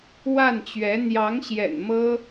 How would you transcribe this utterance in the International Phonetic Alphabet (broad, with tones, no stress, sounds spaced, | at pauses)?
w a˥˩ n t͡ɕ ɥ ɛ˧˥ n̪ j ɑ˧˥ ŋ ɕ j ɛ̰˨˩ n m ɤ˥